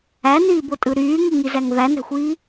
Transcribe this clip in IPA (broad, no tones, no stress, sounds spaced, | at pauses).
æ n iː b o tʼ ɯ ɾ yː ŋ i ŋ i z æ ŋ v æ n æ̤ xʷ iː